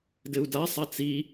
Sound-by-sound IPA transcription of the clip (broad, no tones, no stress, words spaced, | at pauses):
dɘu̯dasˤa t͡si